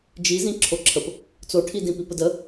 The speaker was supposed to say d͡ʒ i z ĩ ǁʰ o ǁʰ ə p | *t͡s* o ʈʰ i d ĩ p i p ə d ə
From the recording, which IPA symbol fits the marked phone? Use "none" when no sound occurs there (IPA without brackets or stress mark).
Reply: t͡s